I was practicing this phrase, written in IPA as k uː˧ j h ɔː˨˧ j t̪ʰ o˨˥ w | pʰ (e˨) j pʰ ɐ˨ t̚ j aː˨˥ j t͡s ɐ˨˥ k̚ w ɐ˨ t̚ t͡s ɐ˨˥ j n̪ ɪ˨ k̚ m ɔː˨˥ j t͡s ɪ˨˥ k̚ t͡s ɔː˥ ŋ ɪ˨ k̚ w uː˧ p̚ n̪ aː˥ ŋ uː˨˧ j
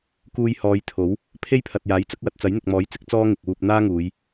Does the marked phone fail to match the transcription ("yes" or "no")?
yes